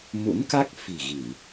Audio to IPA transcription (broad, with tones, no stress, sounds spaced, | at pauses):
m ṵ˧˥ n k a˦˥ k̚ f i̤˨˩ ɣ i˧˩˨